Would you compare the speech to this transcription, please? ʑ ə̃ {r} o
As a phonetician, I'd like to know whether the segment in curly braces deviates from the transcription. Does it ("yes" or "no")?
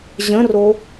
no